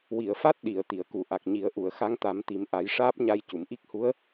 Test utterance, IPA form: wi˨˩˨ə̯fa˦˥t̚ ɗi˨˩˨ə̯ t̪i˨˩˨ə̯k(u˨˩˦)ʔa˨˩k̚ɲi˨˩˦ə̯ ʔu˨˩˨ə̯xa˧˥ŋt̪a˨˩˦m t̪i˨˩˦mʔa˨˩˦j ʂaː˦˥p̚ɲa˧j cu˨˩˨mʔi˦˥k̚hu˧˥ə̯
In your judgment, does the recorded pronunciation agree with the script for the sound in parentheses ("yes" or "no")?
no